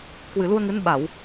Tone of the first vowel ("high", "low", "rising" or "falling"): low